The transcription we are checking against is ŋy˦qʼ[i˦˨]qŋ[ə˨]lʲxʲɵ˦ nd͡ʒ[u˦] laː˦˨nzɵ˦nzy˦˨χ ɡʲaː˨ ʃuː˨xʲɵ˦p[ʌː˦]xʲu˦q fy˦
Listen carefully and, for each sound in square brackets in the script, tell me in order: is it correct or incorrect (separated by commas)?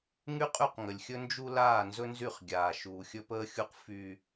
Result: incorrect, correct, correct, incorrect